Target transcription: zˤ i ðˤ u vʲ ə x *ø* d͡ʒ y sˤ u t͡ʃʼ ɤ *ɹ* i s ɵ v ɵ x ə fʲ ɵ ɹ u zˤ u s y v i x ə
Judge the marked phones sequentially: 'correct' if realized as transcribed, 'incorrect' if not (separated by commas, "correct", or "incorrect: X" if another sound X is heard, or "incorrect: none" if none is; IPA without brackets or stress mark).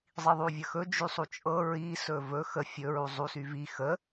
incorrect: ɵ, correct